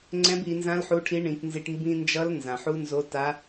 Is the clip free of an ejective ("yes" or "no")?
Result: yes